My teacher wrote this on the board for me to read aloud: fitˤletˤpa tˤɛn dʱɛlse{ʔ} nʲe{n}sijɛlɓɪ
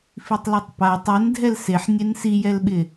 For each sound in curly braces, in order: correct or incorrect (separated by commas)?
incorrect, correct